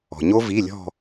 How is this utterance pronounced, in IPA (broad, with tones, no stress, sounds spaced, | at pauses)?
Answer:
ɔ̤˩ ɲ o˦˥ v i˩˧˩ lʲ ɔ̤˧˩